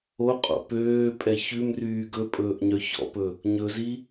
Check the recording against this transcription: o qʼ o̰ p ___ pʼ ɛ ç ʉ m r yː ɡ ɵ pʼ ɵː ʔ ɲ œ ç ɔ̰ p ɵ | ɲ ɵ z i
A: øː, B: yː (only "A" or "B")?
A